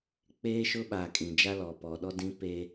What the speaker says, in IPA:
k͡peː˦ʃʊ˦ ɓaː˨kʼĩ˨d͡ʒa˦lɔ˨ pɔ˨ɗɔ˦dĩ˦ pe˦

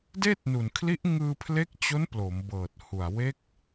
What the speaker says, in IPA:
deː˥˩t̚nu˨˩nkʰli˦˥ʔ ŋɯː˧pʰle˦˥k̚t͡ɕo˦˥n plo˩˦mbɤː˨˩t̚hu˨˩a̯ we˦˥k̚

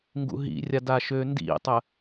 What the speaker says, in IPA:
ŋɡṵɦḭrʲa daʃøndḭtˤə

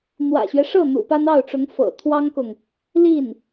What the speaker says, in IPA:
n̪wä̰˨˩ɕɥɛ˦ʂɤ˥˩ n̪ṵ˨˩pa˥nɑ˥˩ʊ̯ʈ͡ʂʊ˧˥ŋ fɤ̰˨˩t̪ʰwɑ˥ŋkʊ˨ŋ | li˥˩n

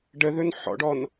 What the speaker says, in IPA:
ɖəðɵn ħɔ̰ɖɔn

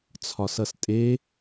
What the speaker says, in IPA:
t͡sʰɒsʌstʼe

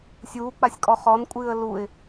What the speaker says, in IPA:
sʲuːk͡pasʲkʼɔ χɔnkʷʼɨːə̯ luɪ̯

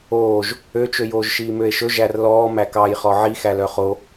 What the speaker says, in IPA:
oːʒ | øt͡ʃøjoːʒ ʃiːmøe̯ʃɵ ʒærlɔː mækɑjχɔ ʕixæ lœχo

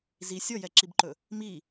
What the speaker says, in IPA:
zi sʲɔjɛǁibǃɵ | mi

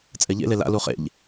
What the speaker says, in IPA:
t͡sʼɛʎḛle la̰ luχḛʎ

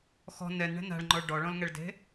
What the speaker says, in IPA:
xɔ̤ nɛnɳɛ̤ na̤ɭŋ͡ǃɔɭ ɖɔɭɔ̃lŋɛɭde̤

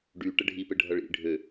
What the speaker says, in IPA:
ɖy ʈəɖʱipɘ ɖʱʌɭḭ ɖʱø

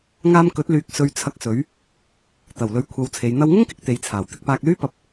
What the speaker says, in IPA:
ŋaː˧mkɵ˨˥t̚ lyː˨k̚ sɵ˧ɥt͡sʰɐ˧k̚sɵ˨˥ɥ | t̪ɐ˨˩wlɵ˨˥ɥkʷʰɐ˨˧wt͡sʰe˨˧j n̪ɐ˧wŋʊ˥ŋkɪ˨˥k̚ t̪e˨˧jt͡sʰaː˨˩w t̪ɪ˧k̚paː˧k̚lyː˥ pɐ˧p̚

